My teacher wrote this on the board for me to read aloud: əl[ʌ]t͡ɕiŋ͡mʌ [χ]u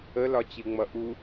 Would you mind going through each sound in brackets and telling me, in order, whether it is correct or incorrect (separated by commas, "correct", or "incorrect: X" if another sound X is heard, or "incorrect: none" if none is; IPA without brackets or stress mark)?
incorrect: ɒ, incorrect: ʔ